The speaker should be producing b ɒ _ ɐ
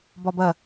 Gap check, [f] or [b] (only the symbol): b